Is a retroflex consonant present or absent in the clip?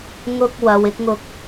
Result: absent